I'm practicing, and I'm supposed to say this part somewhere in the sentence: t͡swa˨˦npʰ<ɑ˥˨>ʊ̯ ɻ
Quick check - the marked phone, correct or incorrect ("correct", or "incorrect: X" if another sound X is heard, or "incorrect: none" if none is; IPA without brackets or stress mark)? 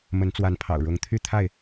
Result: incorrect: ɑ̰˨˩